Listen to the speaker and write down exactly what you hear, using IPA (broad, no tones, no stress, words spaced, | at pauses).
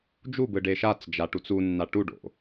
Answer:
d͡ʒubɯ ɖeʃat͡sd͡ʒa ʈut͡sunːa ʈuɖo̰